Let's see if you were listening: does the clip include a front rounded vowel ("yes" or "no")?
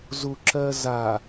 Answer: no